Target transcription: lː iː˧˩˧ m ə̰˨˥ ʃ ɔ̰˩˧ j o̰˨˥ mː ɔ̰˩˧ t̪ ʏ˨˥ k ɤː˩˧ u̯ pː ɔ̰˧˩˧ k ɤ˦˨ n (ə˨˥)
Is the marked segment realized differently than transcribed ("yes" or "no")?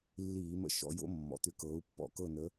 no